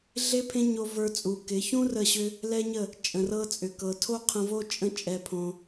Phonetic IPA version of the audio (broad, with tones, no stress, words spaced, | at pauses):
ɮe˦pʰẽ˦ɲo˧ və˞˧t͡sʼu˨ kɪ˨˦ çũ˦ rə˦˨ɕʏ˦ | lɛ˦ɲə˦˨ | t͡ʃʼə̃˨rɤ˧t͡sʼʏ˨kɤ˨ tʰo˦qʰə̃˧vo˦ t͡ʃʼə̃˦ t͡ʃʼɛ˧pʰõ˧